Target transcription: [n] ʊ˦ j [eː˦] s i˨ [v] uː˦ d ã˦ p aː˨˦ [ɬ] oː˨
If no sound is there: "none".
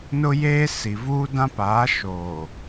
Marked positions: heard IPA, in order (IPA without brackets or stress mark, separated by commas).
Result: n, eː˦, v, ʃ